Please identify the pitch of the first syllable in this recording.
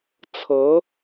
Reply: rising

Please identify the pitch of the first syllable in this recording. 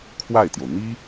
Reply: falling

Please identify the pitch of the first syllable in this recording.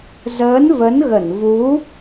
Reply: rising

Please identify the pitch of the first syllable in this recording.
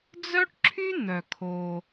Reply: high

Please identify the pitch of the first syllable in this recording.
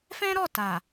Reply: high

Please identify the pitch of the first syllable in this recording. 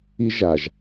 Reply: high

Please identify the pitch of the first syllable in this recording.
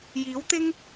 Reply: rising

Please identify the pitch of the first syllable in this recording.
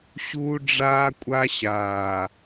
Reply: high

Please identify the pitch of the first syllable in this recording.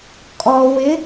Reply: low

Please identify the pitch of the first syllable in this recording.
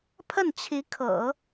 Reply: falling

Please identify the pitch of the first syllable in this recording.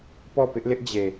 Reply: falling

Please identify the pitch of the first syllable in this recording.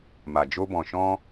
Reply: low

